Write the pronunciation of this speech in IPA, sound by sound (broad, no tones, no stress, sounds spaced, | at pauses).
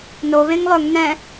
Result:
n o β ẽ ŋ lˠ ɵ ŋ n ɛ̃